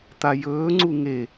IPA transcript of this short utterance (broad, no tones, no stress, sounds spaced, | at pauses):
t̪ a j ɵː ŋ͡ǀ u ŋ e